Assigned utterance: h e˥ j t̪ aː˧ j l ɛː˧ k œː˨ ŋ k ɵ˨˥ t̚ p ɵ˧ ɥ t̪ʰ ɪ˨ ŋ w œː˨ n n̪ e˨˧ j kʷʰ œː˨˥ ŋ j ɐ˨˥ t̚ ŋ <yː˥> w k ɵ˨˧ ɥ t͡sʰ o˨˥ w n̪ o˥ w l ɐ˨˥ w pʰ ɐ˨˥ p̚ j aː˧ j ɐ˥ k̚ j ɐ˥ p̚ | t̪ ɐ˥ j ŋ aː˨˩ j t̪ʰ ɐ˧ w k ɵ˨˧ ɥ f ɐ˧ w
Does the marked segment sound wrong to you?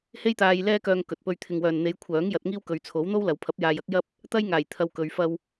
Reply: yes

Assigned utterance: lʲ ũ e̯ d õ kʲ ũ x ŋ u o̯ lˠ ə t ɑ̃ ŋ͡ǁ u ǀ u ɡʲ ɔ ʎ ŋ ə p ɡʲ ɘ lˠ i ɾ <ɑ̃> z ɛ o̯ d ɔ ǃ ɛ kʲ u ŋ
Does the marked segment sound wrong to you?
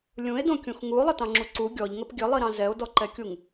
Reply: no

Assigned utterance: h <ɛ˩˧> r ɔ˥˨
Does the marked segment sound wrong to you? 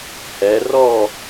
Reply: no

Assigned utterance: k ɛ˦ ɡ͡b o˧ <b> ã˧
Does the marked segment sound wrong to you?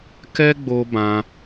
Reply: no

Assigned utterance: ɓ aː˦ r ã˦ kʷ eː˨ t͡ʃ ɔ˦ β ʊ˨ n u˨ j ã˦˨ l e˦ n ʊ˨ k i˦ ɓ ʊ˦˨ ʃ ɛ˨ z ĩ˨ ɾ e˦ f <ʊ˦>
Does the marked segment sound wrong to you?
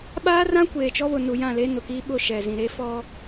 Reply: yes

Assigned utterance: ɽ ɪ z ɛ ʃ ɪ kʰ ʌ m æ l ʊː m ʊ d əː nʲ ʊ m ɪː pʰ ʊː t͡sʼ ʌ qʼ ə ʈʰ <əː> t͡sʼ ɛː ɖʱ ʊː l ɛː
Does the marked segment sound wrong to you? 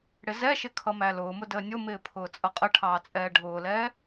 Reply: yes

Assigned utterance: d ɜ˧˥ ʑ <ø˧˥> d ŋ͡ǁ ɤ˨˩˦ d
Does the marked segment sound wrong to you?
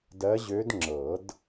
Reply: no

